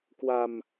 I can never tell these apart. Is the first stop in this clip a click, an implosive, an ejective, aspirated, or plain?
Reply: plain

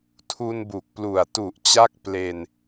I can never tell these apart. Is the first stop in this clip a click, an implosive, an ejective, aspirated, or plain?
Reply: aspirated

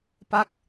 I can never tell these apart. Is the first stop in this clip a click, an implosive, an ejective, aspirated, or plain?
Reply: plain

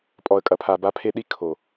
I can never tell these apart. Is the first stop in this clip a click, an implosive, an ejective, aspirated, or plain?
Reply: ejective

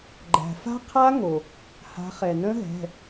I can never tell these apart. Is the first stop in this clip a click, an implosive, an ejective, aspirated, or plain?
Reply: click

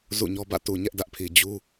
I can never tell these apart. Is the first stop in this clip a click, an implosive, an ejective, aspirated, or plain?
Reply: plain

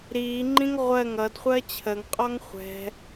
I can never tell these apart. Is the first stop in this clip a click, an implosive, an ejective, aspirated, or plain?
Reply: click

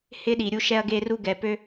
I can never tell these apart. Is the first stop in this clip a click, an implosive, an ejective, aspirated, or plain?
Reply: implosive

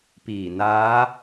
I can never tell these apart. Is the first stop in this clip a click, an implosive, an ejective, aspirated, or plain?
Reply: plain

